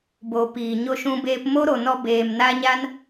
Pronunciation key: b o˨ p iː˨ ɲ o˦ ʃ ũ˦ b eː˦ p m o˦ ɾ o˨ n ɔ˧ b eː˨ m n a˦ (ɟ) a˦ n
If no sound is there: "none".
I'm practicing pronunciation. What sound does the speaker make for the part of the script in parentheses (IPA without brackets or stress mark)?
ɲ